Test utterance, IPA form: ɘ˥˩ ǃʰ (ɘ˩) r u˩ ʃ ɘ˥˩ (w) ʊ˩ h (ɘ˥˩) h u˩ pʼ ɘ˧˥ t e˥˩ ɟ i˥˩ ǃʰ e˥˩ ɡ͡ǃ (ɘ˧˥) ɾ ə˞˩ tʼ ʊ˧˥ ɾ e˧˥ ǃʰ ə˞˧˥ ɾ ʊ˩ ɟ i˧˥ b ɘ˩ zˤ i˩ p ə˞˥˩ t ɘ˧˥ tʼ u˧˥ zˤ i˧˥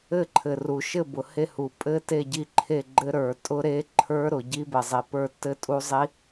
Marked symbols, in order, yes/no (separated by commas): yes, no, no, yes